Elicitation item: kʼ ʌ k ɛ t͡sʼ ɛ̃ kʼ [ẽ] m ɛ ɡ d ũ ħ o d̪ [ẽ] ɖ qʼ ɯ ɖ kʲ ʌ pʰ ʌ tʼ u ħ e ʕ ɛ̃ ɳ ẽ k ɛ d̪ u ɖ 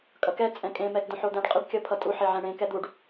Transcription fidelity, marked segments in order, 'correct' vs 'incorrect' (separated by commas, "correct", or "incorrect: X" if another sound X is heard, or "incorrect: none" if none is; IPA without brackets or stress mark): correct, incorrect: ɛ̃